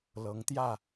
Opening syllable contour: rising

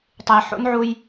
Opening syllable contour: low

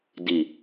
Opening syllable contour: low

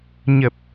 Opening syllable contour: low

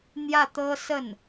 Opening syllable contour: falling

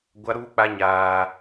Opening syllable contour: high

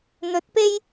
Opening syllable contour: rising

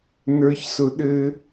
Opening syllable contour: low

